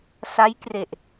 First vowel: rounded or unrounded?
unrounded